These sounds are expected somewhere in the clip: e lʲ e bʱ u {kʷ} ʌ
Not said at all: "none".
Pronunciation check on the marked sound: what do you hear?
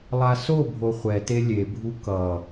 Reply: k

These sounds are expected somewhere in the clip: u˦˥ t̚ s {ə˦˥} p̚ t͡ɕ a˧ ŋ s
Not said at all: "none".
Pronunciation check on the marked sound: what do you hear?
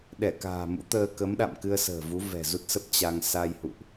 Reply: ə˦˥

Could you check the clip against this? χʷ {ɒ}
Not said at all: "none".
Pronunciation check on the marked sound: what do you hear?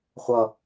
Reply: ʌ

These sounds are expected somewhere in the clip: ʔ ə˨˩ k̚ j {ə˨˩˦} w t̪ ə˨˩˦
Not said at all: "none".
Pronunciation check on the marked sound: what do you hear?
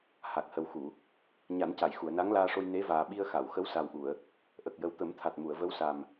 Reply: ə˨˩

